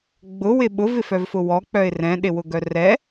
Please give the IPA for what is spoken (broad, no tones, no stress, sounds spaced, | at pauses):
ɡ͡b ʊ w ɪ ɓ ʊ v ɪ f œ v f ʊ w ɔ k͡p œ ɪ̯ r ɛ̃ ɗ ɪ w ʊ ɡ œ r ɛ